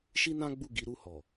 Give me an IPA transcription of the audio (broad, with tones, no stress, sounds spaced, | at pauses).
ʃ i˦ n ã˦ ɡ͡b u˦˨ ɡ i˨˦ ɾ u˦˨ h ɔ˨